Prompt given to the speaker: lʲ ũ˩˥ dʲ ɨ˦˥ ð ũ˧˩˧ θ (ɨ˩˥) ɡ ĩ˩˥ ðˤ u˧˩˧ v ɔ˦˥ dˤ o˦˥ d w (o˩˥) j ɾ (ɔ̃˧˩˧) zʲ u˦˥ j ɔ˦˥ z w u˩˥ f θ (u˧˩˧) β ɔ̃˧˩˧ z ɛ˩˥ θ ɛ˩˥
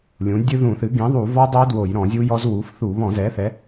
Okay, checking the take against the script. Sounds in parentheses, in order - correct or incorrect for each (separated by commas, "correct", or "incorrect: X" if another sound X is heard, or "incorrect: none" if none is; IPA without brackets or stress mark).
correct, incorrect: o˧˩˧, correct, correct